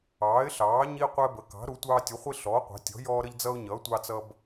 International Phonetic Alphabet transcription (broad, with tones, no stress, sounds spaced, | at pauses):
ɑː˩˥ ɪ̯ ɬ ɑː˩˥ ɲ i˦ qʷ ɛ˦ b ə˩˥ k ɑ̤˩˥ ɾ u˩˥ tʷ ɑː˦ tʲ u˩˥ χʷ i˦ ɬ ɔː˩˥ qʷ ɑ̤˩˥ tʲ ɔ̤˩˥ j ɔː˦ ɾ ə˦ ʎ d͡z ʌ˦ ʊ̯ ɲ ʌː˩˥ tʷ ɑ˦ t͡s ʌ˦ b